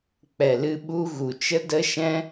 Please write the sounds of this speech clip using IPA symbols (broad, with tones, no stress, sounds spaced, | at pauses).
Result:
k͡p ɛ˨ l ɨ˧ ɓ u˧ ɣ u˨ t͡ʃ ə˦ d ə˦ ʃ ɛ̃˦